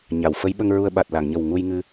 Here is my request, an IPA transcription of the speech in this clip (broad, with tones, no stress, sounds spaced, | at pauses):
ɲ a˨˩˨ w f ə˧˥ j ɓ ə˧ ŋ ɹ u˧ ə̯ ɓ a˨˩ t̚ l a˨˩˨ ŋ ɲ ə˨˩ w ŋ u˧ j ŋ ɨ˧